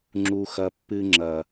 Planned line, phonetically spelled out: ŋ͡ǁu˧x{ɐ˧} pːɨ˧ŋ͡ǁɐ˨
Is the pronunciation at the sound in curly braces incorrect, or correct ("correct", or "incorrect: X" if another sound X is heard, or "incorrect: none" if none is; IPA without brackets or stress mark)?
correct